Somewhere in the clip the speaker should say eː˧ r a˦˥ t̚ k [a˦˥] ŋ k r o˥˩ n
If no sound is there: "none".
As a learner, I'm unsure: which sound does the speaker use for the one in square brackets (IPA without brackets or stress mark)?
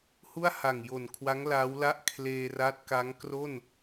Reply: a˦˥